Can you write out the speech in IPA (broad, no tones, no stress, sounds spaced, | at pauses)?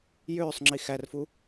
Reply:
j øː sˤ ŋ͡ǁ i x æ r f u